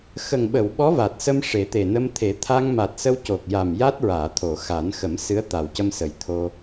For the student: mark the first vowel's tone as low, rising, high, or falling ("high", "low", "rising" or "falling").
low